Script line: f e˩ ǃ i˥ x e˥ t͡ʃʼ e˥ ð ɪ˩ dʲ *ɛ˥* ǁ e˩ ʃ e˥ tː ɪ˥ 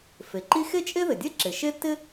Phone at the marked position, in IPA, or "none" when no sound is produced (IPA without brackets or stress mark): ɛ˥